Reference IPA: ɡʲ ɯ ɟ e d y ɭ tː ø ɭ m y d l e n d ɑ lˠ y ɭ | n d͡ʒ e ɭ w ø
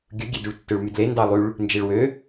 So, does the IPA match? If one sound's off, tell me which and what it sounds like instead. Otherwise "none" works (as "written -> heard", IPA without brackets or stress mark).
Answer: ɟ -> ɡʲ